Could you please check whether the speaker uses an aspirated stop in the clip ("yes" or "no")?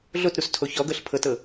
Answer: yes